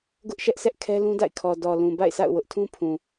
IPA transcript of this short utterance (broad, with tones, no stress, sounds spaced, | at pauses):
ɡ ʊ˦ ʔ ʃ ɛ˦ ʔ s ɛ˦ ʔ kʰ ɛ˦ l ũ˦ d a̰˦˨ ɪ̯ kʰ ɔ˨ d ɔ˨ l ũ˨ b a̰˦˨ ɪ̯ s a̰˦˨ ʊ̯ w ʊ˦ ʔ tʰ ũ˦ pʰ ũ˨